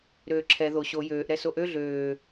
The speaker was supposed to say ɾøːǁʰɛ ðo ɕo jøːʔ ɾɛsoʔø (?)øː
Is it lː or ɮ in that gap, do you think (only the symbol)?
ɮ